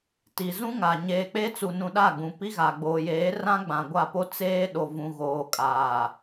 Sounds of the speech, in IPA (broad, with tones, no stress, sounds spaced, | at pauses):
t i˨ z ũ˦ ŋ a˨ ɲ eː˨ k͡p e˦ t͡s u˨ n ũ˨ ɗ a˦˨ ɡ͡b ũ˨ p i˦ ɣ a˨ ɡ͡b oː˨ j eː˨˦ r ã˦ ɡ͡b ã˨ ɡʷ a˦˨ p o˦ t͡s eː˦ ɗ o˨ v ũ˨ ɣ oː˨ kʼ aː˨